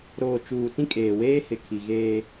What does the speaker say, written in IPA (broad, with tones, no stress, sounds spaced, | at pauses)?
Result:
ɾ oː˨ t͡ʃ uː˨ t ĩ˦ kʼ eː˨ w eː˦ h ɪ˨ kʰ i˨ ɣ eː˦